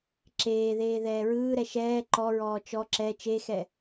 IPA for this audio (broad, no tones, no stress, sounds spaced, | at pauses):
ǁ eː ð eː ð ɛː ɹ ɯː ɾ ɛ ʃ ɛː ǃ ɔ ɹ ɔː t͡ʃ ɔ ǁ ɛ t͡ʃ e x ɛ